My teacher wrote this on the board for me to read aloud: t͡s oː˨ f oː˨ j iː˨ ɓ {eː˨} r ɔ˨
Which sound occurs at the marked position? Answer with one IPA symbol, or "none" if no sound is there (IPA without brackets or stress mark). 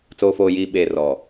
eː˨